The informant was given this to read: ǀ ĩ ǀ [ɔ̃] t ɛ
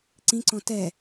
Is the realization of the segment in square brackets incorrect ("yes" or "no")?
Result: no